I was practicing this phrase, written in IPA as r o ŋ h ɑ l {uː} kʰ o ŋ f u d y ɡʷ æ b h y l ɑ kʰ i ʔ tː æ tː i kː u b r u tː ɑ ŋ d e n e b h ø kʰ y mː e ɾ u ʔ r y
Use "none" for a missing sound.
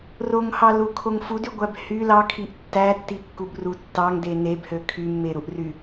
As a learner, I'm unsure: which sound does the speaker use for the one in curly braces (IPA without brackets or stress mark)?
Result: u